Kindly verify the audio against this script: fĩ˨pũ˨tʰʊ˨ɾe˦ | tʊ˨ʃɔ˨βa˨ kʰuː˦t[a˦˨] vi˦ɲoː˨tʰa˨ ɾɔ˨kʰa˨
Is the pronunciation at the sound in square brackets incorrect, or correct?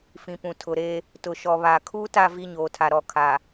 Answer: correct